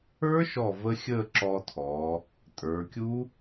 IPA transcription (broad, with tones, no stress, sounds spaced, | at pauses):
ə˞˦˥ ʃ ɔ˧˩ v ə˦˥ xʲ əː˥˧ ǁ ɔː˧ tʰ ɔː˩˧ | tʼ ə˞˩˧ kʲ u˦˥